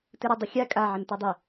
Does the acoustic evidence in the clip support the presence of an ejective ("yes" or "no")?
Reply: yes